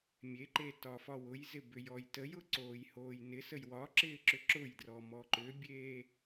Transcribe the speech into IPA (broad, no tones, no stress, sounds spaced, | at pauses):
mʲ e ǃ e t ɒ f ɒ w ʊ j z ɪ b ʏ j ɔ j t ə j ʊ ǀ oː j h oː j n ɪ s ə j w ɒ ǁ ɪː ǁ ʏ ǁ ʊ j d r ɔ m ɔ ǃ ʏ bʲ eː